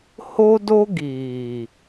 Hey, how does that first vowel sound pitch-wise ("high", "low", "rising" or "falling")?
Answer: high